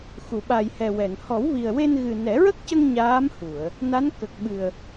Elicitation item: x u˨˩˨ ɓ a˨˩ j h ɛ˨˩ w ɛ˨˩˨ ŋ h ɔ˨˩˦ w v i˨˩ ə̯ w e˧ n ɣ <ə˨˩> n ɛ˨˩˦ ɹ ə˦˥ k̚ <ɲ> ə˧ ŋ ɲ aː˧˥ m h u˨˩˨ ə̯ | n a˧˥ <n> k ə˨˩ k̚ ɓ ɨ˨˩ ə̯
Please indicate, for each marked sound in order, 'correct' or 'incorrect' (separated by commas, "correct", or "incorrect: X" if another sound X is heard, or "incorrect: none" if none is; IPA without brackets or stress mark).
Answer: incorrect: ɨ˨˩, incorrect: c, correct